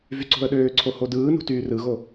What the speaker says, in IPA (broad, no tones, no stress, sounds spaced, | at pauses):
v y ǀ o̤ ə̯ ɗ øː ǀʰ o h o d ɯː n ṳ t yː r ɯ ɣ o